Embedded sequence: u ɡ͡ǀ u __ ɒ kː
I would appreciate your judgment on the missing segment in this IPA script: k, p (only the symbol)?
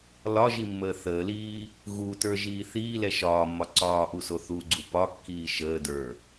p